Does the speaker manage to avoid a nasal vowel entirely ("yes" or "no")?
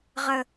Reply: yes